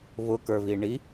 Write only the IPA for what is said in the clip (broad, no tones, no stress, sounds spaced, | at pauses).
β ʊ k ə˞ β i ɳ i